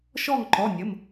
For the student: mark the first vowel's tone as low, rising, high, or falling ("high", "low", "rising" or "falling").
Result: falling